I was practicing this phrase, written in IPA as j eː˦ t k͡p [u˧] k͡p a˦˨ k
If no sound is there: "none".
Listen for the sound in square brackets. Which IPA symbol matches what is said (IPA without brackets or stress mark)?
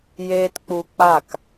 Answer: u˧